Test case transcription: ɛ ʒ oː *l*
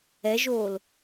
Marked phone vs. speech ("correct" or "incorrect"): correct